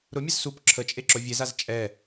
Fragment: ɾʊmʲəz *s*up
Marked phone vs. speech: correct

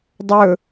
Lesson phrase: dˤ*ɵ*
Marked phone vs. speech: correct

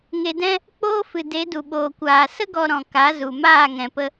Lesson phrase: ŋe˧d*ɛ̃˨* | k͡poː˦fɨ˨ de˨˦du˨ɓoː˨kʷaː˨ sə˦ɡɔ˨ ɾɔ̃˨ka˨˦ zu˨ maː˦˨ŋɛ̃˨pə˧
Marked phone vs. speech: incorrect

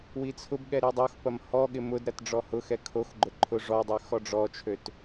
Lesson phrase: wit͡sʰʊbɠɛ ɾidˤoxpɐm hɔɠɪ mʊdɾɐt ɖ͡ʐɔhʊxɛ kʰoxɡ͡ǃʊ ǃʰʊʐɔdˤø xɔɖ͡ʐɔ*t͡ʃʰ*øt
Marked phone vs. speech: correct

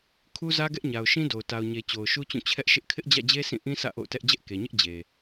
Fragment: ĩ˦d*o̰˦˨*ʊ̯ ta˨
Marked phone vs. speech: incorrect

